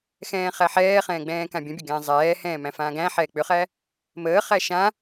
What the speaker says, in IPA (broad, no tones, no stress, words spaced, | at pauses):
xɛ̃ːχæħɛːχɛ̃ː ɡ͡bɛ̃ːkãbʲə̃bʲə ɡɛ̃ːzˤɛːhɛ̃ː mæ̃fãːɡæ̃ħɛː k͡pʏχæ | məːχæ ʃã